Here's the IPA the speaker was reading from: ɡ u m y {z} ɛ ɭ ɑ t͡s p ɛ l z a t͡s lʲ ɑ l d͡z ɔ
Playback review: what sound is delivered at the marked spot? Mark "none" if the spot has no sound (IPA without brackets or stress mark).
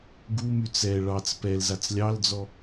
t͡s